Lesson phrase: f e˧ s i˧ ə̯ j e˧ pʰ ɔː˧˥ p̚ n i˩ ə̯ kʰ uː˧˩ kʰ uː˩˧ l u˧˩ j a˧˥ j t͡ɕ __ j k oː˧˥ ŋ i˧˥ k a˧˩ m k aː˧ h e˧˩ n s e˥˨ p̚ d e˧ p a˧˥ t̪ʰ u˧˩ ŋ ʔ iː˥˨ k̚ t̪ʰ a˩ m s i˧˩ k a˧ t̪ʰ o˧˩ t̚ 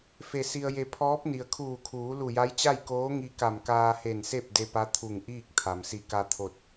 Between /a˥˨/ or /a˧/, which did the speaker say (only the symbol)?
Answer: a˥˨